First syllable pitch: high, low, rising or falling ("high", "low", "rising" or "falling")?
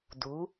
rising